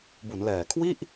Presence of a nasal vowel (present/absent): absent